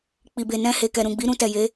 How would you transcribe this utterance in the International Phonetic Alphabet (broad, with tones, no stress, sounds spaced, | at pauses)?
k͡p i˨ b e˨ n ɛ̃˧ h e˨ k ɛ˨ ɾ ũ˨ ɡ͡b i˨˦ ɾ ũ˧ t ɛ˨ j e˨˦